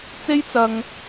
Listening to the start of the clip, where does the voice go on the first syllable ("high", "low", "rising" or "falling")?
high